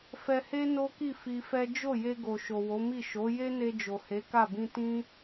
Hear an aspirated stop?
no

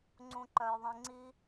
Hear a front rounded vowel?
yes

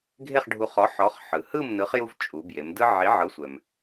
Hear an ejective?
yes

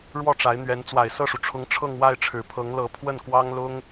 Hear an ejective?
no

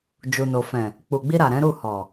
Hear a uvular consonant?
no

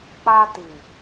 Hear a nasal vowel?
no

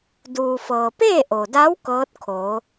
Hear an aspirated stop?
yes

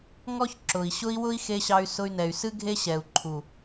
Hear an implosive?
no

